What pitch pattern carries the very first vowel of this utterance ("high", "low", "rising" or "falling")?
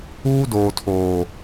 high